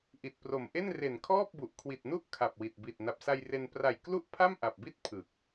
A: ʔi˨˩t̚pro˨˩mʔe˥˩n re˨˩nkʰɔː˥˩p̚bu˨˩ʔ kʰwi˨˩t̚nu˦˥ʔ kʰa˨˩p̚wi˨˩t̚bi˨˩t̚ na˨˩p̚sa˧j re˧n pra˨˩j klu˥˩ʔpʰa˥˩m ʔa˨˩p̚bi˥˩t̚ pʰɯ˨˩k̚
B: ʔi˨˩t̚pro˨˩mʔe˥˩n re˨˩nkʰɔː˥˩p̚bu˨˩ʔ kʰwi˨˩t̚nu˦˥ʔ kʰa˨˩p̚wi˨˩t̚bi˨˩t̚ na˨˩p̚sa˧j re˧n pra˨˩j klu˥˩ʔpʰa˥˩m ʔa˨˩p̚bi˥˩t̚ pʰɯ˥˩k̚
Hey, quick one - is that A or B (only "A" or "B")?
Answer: A